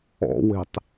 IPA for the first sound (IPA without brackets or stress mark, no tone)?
ɔ̰